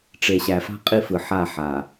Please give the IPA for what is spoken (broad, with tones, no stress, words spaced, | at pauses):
ʈ͡ʂe˨ɕæ˨fa̤˦ qʼi˦fɯ˨ ħa˦˨ħa˨